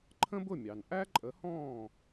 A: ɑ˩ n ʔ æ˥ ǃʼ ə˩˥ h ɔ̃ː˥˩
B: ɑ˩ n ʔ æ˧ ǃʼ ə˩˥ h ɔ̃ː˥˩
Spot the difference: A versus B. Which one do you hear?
A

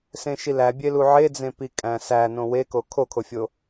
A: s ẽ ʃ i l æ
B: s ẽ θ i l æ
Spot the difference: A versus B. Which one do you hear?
A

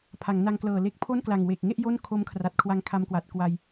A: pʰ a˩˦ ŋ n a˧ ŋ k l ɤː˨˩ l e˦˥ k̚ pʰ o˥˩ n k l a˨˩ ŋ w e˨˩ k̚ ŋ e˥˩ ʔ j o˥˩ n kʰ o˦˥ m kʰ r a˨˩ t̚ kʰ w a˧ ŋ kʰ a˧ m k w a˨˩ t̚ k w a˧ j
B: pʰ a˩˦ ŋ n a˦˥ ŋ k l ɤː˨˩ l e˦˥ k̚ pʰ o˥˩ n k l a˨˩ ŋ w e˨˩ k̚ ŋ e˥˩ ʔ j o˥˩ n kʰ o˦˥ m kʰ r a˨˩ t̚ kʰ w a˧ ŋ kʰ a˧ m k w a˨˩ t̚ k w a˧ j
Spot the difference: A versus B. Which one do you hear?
A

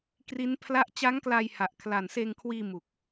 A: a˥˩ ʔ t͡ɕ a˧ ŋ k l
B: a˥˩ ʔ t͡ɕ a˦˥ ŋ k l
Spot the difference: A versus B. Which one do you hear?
B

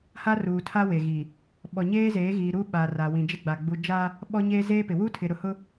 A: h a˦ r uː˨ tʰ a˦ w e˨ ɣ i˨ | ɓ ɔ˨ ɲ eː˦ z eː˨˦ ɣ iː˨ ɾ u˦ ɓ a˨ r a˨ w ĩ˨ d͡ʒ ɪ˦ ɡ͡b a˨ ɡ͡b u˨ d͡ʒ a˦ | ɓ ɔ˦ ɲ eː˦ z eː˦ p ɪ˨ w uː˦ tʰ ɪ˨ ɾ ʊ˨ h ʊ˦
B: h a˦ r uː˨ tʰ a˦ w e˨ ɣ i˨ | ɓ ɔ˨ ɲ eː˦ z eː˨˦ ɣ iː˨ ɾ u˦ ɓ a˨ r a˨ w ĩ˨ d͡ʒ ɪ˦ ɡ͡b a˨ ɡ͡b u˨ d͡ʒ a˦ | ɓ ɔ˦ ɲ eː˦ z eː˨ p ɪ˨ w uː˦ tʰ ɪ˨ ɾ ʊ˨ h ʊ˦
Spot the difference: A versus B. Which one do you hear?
A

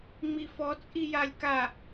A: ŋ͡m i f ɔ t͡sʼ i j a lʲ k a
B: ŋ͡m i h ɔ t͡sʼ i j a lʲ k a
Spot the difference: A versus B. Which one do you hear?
A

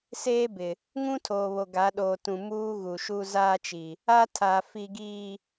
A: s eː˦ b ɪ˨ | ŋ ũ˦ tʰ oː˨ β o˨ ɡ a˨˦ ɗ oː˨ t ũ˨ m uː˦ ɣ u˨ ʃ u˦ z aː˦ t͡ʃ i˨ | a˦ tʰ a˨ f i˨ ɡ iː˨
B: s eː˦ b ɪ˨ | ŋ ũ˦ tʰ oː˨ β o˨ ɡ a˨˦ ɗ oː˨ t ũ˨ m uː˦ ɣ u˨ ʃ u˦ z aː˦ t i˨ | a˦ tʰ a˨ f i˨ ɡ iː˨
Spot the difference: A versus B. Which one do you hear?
A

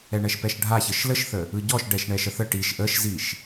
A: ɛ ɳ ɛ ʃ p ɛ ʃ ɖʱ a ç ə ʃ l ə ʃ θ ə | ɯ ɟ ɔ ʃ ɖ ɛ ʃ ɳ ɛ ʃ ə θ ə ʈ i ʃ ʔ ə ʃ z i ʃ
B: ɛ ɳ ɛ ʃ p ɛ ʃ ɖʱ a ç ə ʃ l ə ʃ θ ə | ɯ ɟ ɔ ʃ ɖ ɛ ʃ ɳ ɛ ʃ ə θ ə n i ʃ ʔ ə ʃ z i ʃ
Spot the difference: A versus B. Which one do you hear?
A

